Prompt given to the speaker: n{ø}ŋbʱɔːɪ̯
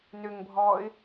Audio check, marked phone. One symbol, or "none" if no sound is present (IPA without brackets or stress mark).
ø